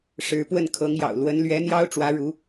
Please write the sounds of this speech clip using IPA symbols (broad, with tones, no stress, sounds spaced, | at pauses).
ʂ ɻ̩˧˥ p w ə˥˩ n kʰ ɤ˧˥ ŋ j ɑ̰˨˩ ʊ̯ l w ə˧˥ n l ɥ ɛ˧˥ n̪ j ɑ˥ ʊ̯ ʈ͡ʂ w ä˧˥ ɻ u˧˥